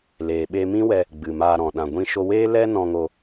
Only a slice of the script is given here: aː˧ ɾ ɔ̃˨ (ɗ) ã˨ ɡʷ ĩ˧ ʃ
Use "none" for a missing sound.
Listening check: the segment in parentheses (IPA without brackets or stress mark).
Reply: ɗ